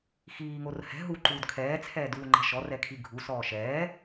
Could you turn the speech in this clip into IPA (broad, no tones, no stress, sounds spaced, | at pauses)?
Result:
x iː ŋ o r h ɛ̤ ɦ u ǃ uː d kʰ ɛː t͡sʰ ɛː d uː ŋ͡ǃ ɛ̤ ʃ ɔ r ɛ kʰ i ɡʱ u s ɔː ʃ ɛː